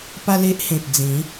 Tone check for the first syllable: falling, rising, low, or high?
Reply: high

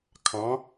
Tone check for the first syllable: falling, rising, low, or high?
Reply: rising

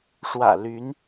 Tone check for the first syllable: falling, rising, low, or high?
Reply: low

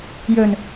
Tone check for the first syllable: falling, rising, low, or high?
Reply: low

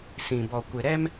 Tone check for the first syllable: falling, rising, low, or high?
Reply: low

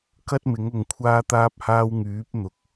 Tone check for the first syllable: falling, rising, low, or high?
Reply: high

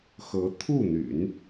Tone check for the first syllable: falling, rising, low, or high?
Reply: rising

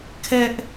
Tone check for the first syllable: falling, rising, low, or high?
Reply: high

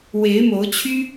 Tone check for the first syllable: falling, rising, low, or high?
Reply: rising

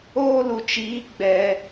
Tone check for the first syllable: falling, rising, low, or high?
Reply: high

